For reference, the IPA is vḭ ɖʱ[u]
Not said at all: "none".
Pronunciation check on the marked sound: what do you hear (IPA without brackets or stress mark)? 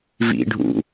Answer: ṵ